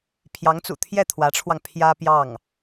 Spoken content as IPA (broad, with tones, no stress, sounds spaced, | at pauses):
pʰ j ɑ˧˥ ŋ t͡s ṵ˨˩ t̪ʰ j ɛ˥˩ t̪ʰ w ä˧˥ ʈ͡ʂʰ w ɑ˧ ŋ pʰ j ä˥ p j ɑ˥˩ ŋ